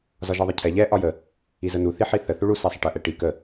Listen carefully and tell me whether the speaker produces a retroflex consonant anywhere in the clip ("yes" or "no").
yes